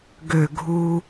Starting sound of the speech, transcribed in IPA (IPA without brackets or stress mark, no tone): ɡ